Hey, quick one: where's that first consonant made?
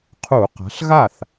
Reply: uvula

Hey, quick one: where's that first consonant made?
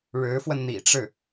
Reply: retroflex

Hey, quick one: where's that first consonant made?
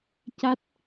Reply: palate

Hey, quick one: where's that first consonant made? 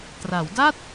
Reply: tongue tip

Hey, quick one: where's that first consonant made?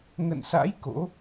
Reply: velum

